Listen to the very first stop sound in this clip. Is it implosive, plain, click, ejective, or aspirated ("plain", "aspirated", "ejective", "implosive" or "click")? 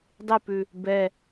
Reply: plain